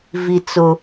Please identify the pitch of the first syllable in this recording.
high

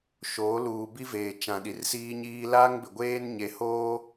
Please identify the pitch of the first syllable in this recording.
rising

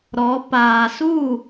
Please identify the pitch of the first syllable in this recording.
rising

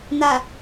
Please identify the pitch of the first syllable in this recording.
low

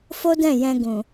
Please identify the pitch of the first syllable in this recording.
high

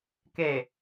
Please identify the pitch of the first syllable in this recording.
low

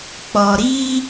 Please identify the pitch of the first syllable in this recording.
low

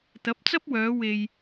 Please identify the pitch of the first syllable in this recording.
rising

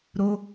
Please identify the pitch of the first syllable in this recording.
high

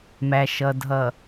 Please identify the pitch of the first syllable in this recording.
low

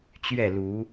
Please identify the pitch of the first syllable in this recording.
falling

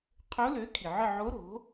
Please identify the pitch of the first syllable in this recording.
rising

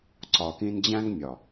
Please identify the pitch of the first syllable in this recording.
low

